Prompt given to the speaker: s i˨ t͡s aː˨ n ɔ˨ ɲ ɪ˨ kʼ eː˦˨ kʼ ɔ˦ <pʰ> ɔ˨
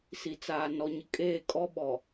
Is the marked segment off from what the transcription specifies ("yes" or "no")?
yes